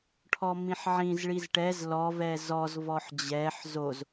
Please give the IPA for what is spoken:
ʈʰ ɔ m ĩ ħ ʕ ĩ z ɭ i z ʈ ɛ z l ɔ v ɛ z ɔ z v ɔ ħ d͡ʑ ɛ ħ z o z

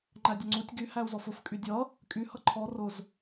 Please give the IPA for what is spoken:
ŋ͡ǃ æ dʲ ʌ ŋ͡ǀ u tʲ ɡ y h æ u̯ z ɔ f ʊ f kʼ y dʲ ʌ | kʼ y h ʌ ǃʰ ɔ r ʊ z

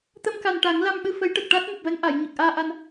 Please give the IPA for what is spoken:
t̪ ə˧ m k a˨˩ n ʈ a˨˩˦ ŋ l a˧ m ɓ ɨ˧ f ə˧˥ j ʈ ə˨˩ k̚ ʈ a˦˥ t̚ m u˨˩ p̚ v ɛ˧˥ ŋ ʔ a˨˩˨ j ɲ ə˨˩ k̚ ʔ aː˧ ʔ a˧ n

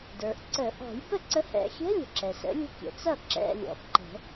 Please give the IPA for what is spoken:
d ə˞˩ ʔ ǀ ə˨˩˦ ʔ ɔ̤˨˩˦ j b ə˥˩ ǀ ə˨˥ h ɛ̰˨˩˦ xʲ ɛ̤˧˥˧ lʲ ə̤˩ ǁ ɛ˩ s ə̰˨˥ lʲ ə̤˥˩ kʲ ə̰˨˩˦ t͡s ʌ˥˩ ǁ ɛ̰˧˥˧ lʲ ɔ̰˨˥ ǃ ə̤˨˩˦

